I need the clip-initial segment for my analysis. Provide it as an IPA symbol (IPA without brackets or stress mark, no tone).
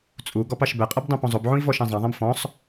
t͡sʼ